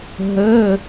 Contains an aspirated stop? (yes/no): no